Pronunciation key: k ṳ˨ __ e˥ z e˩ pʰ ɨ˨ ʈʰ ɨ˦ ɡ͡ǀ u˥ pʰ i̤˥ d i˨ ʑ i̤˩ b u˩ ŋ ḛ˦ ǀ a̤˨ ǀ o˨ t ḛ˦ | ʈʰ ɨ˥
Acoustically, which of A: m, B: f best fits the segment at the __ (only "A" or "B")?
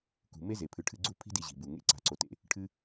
A